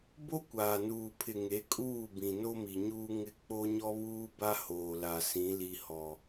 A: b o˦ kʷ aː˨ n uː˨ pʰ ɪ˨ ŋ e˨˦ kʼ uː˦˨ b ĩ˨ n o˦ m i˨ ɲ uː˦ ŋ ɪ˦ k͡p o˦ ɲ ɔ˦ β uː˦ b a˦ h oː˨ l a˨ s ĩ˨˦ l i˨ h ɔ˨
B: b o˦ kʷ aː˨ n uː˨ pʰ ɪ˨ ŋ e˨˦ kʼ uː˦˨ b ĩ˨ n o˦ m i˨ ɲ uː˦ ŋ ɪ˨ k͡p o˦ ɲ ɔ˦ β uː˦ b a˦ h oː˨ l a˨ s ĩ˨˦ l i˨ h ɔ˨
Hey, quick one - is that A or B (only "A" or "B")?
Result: A